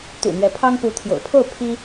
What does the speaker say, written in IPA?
t̪ṵ˨˩ n̪ɥɛ˧˥pʰɑ˥ŋ pu˧˥t̪ʰjo̰˨˩ʊ̯ pʰo˥˩ʊ̯ pʰi˥

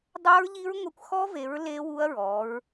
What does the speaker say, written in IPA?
dˤa˦˥ɹʎi˦˥ɹ ŋʷa˦˥kʷ xɔ˦˥ve˨˦ɹ le˦˥wu˦˥ɐ̯ ɹɔ˨˦ɹ

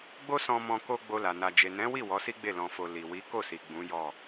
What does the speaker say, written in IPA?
ɡ͡bo˦sɔ̃˧mɔ̃˧ ko˧ ɡ͡bo˧la˨ na˨d͡ʒe˨nɛ̃˨˦wi˦˨ wɔ˨˦si˦ɡ͡be˦˨ lɔ̃˨fo˨ li˨wi˨˦ ko˦˨si˨ ɡ͡bũ˨˦jɔ˦˨

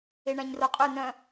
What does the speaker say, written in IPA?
eɳæ̃ɲroqʼʉ nœ̃

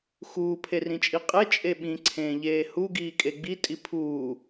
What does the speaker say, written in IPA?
xuːpʰerĩt͡ʃʼi qʼet͡ʃʼe ɓĩǀʰẽːʎeː huɡiːkʼe ɡ͡bitʼi pʰuː

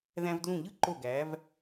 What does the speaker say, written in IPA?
ðæ̃˧vdlũ˧˩ʎɯ˥ǃo˧˩ ɡæ˩˧v

